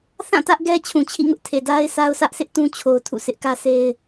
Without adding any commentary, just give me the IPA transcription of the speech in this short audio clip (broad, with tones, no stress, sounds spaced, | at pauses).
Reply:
θ ã˦˨ t ä˦ ʔ ɡ ɛ˦ t͡ɕʰ ũ˨ t͡ɕʰ ḭ˦˨ ŋ ʊ˦ ʔ tʰ e˨ d a˦ ɪ̯ s a˦ ʊ̯ s ä˦ ʔ sʰ ɪ˦ ʔ t ũ˦ t͡ɕʰ o˦ ʊ̯ tʰ ṵ˦˨ sʰ ɪ˦ ʔ k ä˦ s e˦ ɪ̯